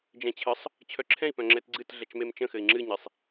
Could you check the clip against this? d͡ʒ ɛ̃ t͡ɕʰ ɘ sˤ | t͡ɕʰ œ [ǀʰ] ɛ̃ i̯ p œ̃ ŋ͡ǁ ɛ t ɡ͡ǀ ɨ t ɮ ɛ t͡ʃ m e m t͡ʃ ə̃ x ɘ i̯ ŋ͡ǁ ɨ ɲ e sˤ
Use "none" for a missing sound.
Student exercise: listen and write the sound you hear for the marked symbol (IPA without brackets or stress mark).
ǁʰ